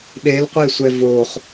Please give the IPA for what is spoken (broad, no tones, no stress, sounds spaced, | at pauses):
ɗ e l qʷ e sʷ ɛ v o χ